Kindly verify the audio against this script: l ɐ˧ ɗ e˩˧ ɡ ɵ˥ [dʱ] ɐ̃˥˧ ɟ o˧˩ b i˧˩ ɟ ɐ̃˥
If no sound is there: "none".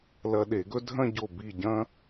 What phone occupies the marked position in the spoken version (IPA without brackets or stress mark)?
dʱ